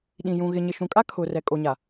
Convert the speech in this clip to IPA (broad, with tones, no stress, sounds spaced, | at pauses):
ɗ ĩ˨ j ũ˨ ɣ ɪ˨ ɲ ɪ˨ ʃ ũ˨ kʼ a˦ kʰ ʊ˨ r ɛ˨ kʼ o˨ ɲ a˨